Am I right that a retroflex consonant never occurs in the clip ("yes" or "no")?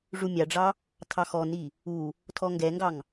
no